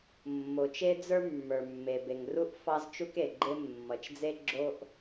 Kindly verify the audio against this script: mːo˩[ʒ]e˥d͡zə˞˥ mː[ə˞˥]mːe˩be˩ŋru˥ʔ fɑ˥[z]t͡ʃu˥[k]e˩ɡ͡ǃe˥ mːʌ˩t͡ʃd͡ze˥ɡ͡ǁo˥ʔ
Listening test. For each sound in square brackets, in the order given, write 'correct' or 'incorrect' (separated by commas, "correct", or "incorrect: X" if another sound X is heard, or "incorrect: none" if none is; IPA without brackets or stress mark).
incorrect: t͡ʃ, incorrect: ə˞˩, correct, correct